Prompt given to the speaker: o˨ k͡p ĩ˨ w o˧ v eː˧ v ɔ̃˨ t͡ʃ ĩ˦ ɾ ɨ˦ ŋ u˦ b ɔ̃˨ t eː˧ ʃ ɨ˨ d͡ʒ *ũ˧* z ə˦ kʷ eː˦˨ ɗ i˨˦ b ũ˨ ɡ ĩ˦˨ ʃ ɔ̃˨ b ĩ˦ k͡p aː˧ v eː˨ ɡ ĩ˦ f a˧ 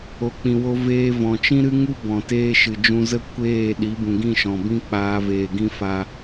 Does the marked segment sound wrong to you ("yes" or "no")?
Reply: no